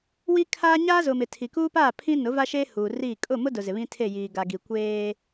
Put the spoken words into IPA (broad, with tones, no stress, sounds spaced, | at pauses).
w i˦ kʰ aː˦ ɲ aː˦ z ʊ˨ m ɪ˨ tʰ i˨ k uː˦ p aː˦˨ pʰ ĩ˦ n ʊ˨˦ v a˦ ʃ eː˦ h uː˨ r iː˦˨ kʼ ʊ˦˨ m ʊ˦ d ʊ˨ z ɪ˨ β ĩ˦ tʰ e˦˨ j iː˨ ɡ a˨ ɡ i˨ kʷ eː˦